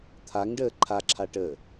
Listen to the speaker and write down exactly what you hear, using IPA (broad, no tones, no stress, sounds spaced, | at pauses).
t̪ʰ a ŋ ɖ əː ǃʰ a ǁʰ a ʈ əː